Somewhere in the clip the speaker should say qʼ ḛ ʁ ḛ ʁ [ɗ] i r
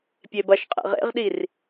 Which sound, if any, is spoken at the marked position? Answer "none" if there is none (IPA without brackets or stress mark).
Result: ɗ